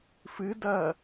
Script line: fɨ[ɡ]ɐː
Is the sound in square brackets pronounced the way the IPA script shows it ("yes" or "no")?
no